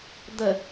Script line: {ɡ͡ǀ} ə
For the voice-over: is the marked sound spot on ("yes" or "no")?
no